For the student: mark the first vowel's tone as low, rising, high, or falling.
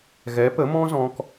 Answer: rising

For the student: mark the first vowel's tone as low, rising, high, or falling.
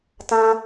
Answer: high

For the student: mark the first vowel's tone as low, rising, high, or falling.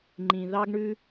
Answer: low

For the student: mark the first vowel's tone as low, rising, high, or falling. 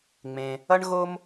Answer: low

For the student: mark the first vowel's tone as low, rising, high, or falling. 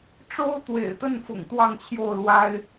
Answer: high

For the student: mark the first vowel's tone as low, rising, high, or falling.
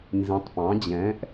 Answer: rising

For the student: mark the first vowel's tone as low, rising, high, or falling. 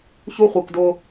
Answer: high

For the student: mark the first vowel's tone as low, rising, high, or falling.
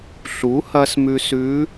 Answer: rising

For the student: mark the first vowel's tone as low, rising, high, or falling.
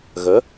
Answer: rising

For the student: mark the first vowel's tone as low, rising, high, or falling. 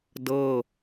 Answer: falling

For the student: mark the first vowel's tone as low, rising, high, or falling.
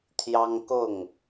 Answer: high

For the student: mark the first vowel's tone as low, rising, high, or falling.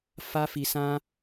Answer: high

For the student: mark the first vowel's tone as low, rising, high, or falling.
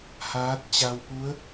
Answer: rising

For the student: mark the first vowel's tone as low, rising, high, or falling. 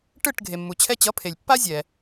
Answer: falling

